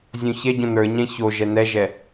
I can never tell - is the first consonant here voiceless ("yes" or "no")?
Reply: no